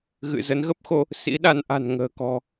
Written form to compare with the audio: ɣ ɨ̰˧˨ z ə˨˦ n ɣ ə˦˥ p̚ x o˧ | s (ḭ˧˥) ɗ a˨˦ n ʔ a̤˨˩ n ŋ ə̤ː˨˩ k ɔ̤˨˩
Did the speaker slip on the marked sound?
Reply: no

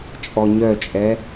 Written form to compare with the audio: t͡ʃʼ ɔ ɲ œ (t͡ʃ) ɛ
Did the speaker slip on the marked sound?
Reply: yes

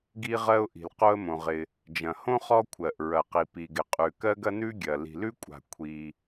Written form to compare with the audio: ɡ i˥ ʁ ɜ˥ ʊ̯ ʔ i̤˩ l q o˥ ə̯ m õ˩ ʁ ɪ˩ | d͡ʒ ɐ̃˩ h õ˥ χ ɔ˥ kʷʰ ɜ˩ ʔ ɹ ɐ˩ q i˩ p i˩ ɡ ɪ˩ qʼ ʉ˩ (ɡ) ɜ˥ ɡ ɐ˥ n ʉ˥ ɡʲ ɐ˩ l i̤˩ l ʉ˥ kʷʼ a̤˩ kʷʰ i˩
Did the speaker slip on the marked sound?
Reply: yes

